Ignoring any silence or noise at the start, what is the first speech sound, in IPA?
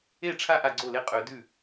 e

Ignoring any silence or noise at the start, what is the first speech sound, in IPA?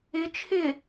ɪ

